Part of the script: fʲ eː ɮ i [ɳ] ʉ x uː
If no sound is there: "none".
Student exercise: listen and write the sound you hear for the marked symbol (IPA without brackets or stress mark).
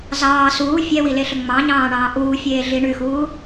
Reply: ɳ